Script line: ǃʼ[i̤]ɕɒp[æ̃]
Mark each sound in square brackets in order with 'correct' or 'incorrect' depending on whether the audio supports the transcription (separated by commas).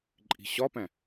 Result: correct, correct